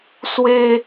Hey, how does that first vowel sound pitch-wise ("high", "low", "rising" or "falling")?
high